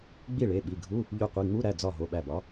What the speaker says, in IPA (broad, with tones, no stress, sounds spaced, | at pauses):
ɡ͡b i˥˩ ɭ e˩˧˩ ɓ i˩˧˩ ɡʱ u˧˥˧ | ʎ u˧˩ qʷ i˩˧˩ ŋ͡m u˧˥˧ ɾ æ˩˧˩ d͡z ɒ˧˩ ɦ o˩˧˩ ɓ æ˧˩ b ɒ˨˥